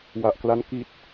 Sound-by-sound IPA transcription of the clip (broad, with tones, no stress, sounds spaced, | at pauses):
w a˨˩ ʔ k l a˦˥ n k i˨˩ t̚